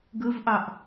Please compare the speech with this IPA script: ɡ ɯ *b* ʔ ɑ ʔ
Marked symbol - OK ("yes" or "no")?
no